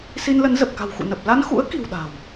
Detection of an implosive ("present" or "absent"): present